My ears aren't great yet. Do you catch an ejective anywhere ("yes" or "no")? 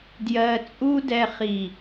yes